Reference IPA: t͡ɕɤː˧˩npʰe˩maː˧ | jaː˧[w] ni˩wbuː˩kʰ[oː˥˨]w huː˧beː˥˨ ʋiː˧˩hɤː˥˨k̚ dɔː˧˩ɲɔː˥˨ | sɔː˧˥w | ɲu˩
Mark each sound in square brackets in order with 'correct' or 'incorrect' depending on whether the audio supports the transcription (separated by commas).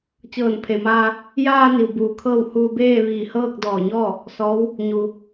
incorrect, incorrect